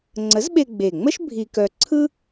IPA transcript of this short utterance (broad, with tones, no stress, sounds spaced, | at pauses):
ŋ͡ǀ ə˨˥ z ɓ e˧ ɡ͡b e˨˩ ŋ͡m ə˥ ʃ bʱ i˧ k œ˧ ǀʰ ɯ˥